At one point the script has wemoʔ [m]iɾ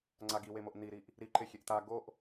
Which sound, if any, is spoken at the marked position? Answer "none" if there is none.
n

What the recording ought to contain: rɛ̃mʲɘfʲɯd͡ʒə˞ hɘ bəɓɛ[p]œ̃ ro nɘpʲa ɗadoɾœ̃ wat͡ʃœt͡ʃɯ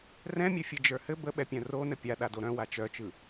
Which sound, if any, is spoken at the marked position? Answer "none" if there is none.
pʲ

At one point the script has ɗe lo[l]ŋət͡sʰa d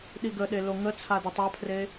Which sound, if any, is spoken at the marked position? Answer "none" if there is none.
none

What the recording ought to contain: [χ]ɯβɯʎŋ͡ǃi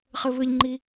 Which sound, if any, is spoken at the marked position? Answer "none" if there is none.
χ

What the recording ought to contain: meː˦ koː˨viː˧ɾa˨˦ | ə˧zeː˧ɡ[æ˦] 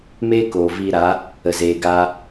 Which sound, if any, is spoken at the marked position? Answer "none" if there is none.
a˦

